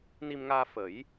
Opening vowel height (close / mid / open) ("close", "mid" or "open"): close